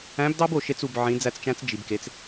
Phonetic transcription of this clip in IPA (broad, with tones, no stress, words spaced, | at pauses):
æ̃˧˥bdɑ˥bo˩ʃe˧t͡s u˩b ʕĩ˩˧d͡zæ˧t͡st͡ʃæ̃˧˥t͡s d͡ʒi˩bke˩˧t͡s